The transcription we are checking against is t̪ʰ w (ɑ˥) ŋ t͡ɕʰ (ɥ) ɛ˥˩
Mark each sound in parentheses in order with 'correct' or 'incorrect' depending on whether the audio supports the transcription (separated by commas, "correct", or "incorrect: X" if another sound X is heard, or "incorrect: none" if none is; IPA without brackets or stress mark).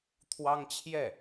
correct, incorrect: j